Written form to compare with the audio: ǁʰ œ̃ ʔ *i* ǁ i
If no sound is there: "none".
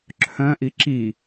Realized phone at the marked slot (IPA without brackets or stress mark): i